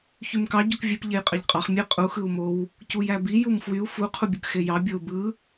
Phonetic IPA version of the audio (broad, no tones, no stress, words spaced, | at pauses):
çymkɑ ɟukvʲep ʎejqʼɑʎqʼɑχ mʲe qʼu xɯu̯mow | cujæbi jumfwyu̯ fu qʰubʲɯkxejɑ bʲou̯bɯ